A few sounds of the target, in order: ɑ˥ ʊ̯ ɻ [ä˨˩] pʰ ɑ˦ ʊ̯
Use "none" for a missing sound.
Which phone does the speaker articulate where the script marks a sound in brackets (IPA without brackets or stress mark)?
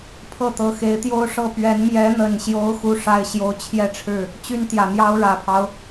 ä˨˩